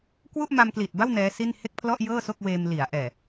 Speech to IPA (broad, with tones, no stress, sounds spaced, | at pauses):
k w u˥˩ ʔ m a˧ m k l i˨˩ t̚ b a˥˩ w n ɛː˦˥ s i˥˩ n h e˥˩ k̚ pʰ l ɔ˥˩ ʔ j ɤː˥˩ s o˥˩ k̚ w eː˧ m l i˩˦ a̯ ʔ ɛː˨˩